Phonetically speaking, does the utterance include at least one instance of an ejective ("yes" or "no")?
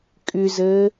yes